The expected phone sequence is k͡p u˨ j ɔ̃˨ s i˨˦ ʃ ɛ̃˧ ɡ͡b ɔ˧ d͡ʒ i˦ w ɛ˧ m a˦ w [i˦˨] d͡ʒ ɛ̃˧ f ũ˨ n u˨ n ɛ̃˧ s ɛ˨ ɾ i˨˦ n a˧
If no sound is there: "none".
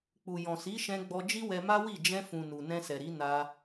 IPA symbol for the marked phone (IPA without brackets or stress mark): i˦˨